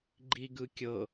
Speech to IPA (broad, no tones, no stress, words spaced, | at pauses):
ɡ͡ǃiɡɯkʲɤ